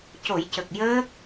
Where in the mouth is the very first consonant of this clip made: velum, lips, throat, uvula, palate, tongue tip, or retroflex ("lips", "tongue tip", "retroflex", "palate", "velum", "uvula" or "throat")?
palate